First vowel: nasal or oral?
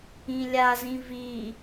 nasal